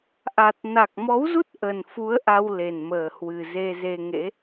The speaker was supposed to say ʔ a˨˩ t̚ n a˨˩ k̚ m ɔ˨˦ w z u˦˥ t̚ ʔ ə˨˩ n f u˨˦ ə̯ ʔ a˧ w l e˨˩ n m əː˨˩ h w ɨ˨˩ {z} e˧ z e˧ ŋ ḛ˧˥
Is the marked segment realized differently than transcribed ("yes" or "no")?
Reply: no